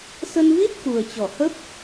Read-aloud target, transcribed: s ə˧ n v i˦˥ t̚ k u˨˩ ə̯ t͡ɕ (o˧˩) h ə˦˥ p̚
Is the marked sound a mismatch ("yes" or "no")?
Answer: yes